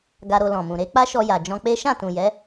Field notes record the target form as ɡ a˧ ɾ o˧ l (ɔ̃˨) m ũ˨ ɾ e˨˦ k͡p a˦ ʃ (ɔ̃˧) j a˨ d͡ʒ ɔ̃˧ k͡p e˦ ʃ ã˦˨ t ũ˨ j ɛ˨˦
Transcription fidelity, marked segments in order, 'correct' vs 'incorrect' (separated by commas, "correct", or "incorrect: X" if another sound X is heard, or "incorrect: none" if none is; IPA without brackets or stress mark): correct, incorrect: ɔ˧